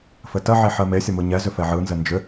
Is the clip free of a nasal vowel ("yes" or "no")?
yes